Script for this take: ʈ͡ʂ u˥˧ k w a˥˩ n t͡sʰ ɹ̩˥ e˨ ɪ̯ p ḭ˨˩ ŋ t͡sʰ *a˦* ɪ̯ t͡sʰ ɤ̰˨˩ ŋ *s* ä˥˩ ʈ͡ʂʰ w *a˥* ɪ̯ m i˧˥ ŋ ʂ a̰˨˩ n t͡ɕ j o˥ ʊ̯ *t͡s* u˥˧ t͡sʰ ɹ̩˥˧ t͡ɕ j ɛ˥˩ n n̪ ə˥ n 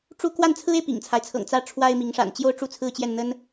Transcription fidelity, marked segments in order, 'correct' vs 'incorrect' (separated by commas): correct, incorrect, correct, incorrect